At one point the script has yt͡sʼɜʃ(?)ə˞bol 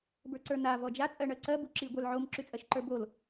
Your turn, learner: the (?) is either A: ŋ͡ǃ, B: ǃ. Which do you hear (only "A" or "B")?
B